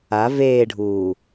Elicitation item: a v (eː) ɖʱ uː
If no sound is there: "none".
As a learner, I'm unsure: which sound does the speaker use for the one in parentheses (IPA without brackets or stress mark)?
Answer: eː